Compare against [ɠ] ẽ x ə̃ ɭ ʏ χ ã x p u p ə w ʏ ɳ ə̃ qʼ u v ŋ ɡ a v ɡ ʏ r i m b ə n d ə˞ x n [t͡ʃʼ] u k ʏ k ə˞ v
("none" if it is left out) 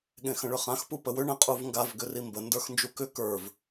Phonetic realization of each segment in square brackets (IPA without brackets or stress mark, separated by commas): ɠ, d͡ʒ